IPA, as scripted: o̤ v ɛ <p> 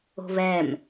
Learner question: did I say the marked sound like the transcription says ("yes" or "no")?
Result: no